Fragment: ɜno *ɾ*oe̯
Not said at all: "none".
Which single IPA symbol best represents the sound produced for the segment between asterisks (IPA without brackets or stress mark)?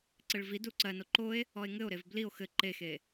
ǃ